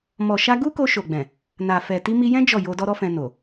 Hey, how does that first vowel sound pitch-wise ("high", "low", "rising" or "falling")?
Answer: low